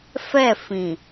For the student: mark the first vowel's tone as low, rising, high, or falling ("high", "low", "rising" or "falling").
falling